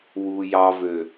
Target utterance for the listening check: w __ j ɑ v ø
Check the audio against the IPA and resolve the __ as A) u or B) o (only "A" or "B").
A